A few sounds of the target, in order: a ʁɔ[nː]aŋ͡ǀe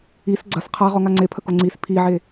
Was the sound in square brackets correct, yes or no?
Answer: no